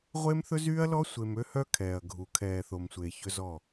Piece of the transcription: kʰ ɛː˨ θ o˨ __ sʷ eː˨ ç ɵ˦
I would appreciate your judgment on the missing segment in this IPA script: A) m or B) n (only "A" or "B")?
A